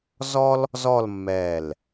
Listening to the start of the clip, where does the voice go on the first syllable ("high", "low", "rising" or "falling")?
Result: high